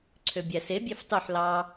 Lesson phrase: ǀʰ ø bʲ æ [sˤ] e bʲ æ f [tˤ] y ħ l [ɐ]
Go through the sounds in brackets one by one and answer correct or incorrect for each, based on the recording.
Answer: incorrect: s, correct, incorrect: ɑ

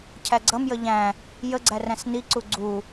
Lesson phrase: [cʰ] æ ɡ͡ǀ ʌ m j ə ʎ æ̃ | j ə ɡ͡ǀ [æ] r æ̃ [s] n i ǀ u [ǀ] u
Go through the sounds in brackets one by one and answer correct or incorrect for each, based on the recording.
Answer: correct, correct, correct, incorrect: ɡ͡ǀ

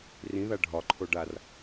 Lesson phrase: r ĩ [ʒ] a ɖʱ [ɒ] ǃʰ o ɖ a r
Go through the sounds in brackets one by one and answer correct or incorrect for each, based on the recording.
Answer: incorrect: ð, correct

